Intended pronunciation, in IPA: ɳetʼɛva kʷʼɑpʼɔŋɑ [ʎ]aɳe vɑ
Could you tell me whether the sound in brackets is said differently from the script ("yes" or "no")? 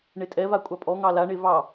yes